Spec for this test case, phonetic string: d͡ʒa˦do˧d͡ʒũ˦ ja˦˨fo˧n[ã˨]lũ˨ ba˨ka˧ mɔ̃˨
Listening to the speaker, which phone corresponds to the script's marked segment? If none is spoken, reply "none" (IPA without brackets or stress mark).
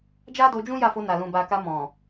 a˨